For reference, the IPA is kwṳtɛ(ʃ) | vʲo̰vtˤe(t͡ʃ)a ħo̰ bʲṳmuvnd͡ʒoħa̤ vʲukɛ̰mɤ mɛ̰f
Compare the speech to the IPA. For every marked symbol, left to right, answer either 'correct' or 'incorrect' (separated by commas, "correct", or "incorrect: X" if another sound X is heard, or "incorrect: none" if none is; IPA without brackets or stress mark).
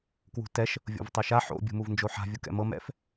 correct, incorrect: ʃ